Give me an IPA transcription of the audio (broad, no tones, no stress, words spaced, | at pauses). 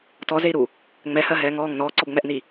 tɔzei̯ɾu | ŋ͡mɛhɜɦɛː ŋɔːŋ nɔːǀɔbŋ͡mɛʔni